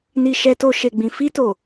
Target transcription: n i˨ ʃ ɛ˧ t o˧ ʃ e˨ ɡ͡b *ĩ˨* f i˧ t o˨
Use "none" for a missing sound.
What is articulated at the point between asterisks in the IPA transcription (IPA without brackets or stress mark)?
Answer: ĩ˨